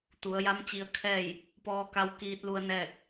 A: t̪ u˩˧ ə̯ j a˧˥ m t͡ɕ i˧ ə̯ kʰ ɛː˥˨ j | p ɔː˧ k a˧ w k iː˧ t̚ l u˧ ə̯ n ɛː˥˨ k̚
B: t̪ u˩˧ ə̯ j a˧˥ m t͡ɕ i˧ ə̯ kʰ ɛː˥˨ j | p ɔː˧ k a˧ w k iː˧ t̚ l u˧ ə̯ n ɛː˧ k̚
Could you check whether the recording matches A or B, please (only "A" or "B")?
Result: A